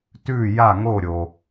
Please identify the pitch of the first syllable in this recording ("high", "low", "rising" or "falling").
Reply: falling